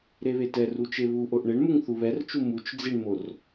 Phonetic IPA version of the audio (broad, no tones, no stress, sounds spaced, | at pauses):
ɾ e β e t ɛ r u t͡ʃ e β u ʔ o ʔ ɳ e ɳ m u ŋ θ u β ɛ r t͡ʃ u m u t͡ʃ d͡z i ɳ m o r